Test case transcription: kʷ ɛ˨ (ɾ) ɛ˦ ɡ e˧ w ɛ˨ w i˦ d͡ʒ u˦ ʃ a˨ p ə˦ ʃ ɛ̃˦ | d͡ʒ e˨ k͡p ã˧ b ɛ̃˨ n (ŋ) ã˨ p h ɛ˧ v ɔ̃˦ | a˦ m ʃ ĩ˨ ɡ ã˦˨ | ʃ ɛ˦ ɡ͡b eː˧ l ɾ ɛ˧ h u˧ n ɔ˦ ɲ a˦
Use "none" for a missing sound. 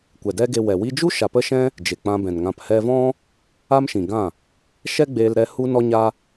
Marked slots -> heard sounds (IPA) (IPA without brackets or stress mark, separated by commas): d, ŋ